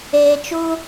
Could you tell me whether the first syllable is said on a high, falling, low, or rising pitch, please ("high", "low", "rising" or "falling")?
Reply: low